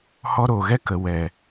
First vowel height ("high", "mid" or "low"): mid